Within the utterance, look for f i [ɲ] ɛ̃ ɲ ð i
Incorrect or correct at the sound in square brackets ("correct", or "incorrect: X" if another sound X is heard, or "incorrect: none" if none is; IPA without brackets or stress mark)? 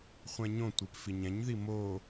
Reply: correct